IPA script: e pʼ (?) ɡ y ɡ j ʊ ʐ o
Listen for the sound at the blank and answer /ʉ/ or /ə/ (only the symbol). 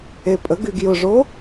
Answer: ə